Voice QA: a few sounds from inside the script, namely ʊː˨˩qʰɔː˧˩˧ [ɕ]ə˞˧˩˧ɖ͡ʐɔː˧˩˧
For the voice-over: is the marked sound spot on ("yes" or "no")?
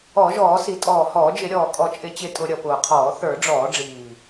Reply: no